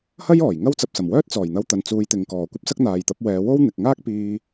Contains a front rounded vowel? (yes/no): yes